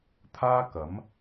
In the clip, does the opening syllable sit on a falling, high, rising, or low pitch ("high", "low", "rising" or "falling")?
high